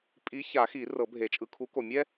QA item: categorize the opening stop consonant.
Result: ejective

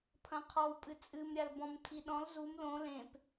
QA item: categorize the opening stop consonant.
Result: aspirated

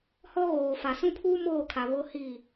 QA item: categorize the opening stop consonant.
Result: aspirated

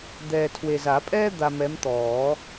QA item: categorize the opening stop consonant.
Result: plain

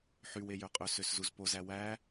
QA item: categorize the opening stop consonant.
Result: ejective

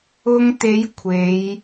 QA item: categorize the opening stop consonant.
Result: plain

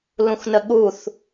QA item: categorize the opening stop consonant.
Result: implosive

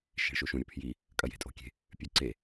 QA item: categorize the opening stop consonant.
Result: aspirated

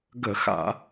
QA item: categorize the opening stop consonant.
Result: plain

